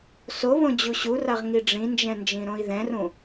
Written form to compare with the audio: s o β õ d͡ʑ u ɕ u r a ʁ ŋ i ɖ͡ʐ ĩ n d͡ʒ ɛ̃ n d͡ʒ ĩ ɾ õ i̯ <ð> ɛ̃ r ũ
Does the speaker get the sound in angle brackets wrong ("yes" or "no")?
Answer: no